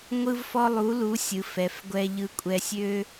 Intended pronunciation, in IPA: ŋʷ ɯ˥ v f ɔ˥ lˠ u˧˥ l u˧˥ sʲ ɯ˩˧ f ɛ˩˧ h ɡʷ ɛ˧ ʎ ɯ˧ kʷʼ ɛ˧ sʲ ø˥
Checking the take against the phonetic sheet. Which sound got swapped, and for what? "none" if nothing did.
h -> f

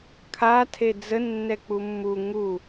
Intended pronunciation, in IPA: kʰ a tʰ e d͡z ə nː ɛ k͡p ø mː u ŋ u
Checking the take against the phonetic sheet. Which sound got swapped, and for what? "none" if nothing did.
ø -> u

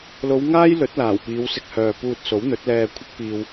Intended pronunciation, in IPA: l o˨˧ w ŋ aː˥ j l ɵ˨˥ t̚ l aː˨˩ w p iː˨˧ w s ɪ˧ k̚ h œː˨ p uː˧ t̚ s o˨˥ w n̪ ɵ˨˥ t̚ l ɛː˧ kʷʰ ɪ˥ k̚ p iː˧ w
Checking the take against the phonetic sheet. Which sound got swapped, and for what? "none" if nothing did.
none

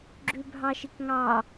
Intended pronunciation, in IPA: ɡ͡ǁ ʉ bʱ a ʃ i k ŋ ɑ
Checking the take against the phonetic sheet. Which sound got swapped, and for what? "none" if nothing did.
a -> ɑ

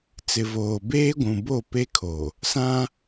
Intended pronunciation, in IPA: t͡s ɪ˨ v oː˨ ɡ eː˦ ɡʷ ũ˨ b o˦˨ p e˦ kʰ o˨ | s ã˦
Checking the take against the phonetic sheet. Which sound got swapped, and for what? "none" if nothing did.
ɡ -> b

